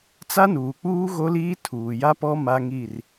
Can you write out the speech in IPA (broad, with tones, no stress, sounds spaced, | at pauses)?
t͡s a˦ n uː˨ k͡p uː˦ ɣ o˦ l iː˦ tʰ uː˨ j a˦ p ɔ˦ m a˦ ŋ i˦˨ r